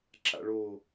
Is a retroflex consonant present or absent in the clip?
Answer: present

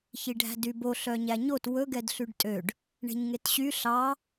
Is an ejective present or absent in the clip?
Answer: present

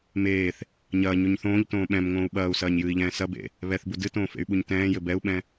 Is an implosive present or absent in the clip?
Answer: present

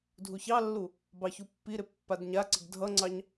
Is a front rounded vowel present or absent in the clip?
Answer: absent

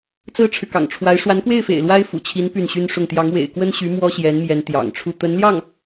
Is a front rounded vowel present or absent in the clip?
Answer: present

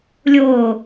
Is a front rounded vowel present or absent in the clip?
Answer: absent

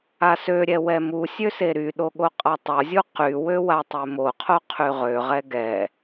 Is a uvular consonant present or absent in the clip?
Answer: present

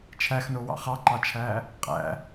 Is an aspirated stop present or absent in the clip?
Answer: present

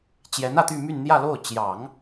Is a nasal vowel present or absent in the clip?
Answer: absent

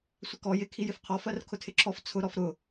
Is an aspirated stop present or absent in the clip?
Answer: present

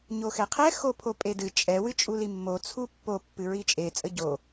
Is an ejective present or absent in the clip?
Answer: present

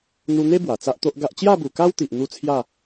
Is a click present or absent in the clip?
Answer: absent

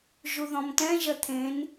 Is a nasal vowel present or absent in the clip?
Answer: present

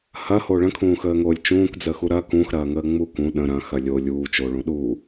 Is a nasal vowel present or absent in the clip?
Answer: present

